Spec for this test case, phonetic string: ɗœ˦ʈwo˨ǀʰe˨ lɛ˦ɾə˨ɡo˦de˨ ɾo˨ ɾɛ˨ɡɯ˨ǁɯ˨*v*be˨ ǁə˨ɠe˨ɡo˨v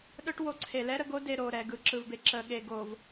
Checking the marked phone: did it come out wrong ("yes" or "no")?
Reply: no